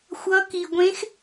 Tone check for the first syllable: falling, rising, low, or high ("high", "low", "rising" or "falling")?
rising